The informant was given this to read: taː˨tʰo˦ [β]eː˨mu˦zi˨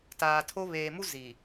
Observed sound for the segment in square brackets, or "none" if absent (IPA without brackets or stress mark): β